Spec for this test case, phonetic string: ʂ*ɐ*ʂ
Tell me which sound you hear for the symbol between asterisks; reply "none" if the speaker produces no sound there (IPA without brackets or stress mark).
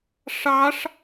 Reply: ɑ